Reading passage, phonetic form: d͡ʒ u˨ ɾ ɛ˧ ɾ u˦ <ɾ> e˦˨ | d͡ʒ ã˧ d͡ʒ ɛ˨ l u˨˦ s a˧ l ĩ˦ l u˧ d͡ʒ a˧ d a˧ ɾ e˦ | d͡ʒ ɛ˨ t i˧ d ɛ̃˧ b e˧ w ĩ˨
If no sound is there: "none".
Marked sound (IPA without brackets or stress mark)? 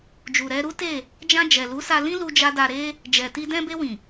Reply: t